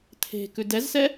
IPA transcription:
t̪ʰ e̤ k ʉ d ɛ z s ɛ

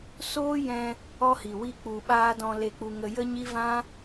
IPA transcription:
s oː˦ j ɛ̃˧ | ɔ˧ h i˨ w i˦ k͡p u˧ ɓ aː˦ d ɔ̃˧ l e˧ k͡p u˧ ŋ ə˧ j ə˦ ɲ i˦ v ã˦

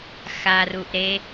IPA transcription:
x a r u ʔ ɾ e

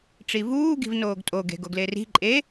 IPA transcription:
ʈ͡ʂ i v uː ɡ i̤ v n oː ɡ tʼ o ɡ e̤ ɡ o ɡ l e r i̤ ǃʼ e

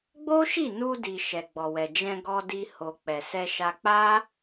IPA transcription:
ɡ͡b o˦ ʃ i˦˨ n u˧ d i˨ ʃ ɛ˨ ɡ͡b ɔ˨ w ɛ˨ d͡ʒ ɛ̃˧ ɡ ɔ˧ d i˧ h o˨ k͡p ɛ˨ s ɛ˧ ʃ a˧ k͡p a˦

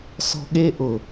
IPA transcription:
s ɔ̤˦ ɠ e˦ ʔ ʊ˨

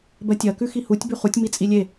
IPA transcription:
b ɜ tʲ ɜ k ʉ x i h u tʲ b ʉ χ u tʲ m i t͡sʼ i lʲ e

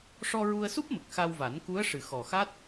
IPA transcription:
ʂ ɔ˧ ɹ u˧ ə̯ s u˦˥ p̚ m ə˨˩ k̚ x a˧ w v a˨˩˦ n k u˧˥ ə̯ ʂ ɨ˨˩ x ɔ˨˩ x a˦˥ t̚

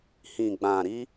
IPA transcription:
h ĩ˨ ɡ͡b ã˨ ɾ i˧

